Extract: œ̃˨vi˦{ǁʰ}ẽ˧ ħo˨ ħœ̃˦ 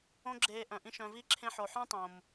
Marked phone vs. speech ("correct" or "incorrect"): correct